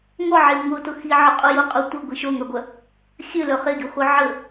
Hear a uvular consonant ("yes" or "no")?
yes